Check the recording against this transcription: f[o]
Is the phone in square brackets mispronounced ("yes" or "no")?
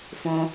yes